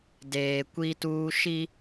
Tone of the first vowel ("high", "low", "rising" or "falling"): low